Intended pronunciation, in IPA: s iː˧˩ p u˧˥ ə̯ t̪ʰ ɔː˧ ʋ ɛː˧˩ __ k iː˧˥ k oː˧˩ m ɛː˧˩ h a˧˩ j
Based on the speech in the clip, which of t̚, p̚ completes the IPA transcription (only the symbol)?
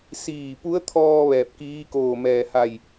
p̚